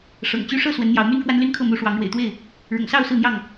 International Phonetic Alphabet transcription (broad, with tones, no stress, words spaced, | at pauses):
ʂɤ̰˨˩ŋt͡ɕy˥˨ ʂɤ˥˨ swə˨˦nn̪jɑ˨˦ʊ̯my˦nkwa˦n ly˦nkʰɤ˥˨mu˨˦ʂwɑ˨˦ŋ ɻwḛ˨˩ɪ̯t̪we˥˨ɪ̯ | ɻʊ̰˨˩ŋsɑ˥˨ʊ̯ sɹ̩˥˨n̪jɑ˥˨ŋ